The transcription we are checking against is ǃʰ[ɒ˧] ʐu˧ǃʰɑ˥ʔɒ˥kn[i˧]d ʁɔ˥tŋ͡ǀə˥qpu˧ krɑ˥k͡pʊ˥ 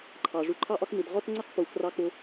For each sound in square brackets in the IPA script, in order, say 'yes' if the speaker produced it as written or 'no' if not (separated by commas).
no, yes